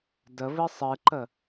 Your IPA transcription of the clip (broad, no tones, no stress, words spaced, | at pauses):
dəβɨ sˤɨǃə